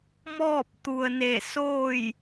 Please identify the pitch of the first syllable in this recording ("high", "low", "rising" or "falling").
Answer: falling